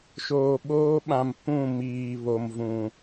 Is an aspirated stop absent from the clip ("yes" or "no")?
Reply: yes